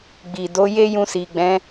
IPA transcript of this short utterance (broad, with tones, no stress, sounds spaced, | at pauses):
ɡ͡b i˨ d o˨˦ j e˦ j ũ˧ s i˨ ɡ͡b ɛ̃˨˦